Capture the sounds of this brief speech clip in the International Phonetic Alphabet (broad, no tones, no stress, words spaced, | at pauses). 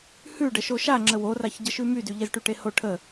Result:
hʉɖə ʃoʃaŋ͡ǁə woraç ɟəʃʉmydy ʎezʈyʈeho ʈʰə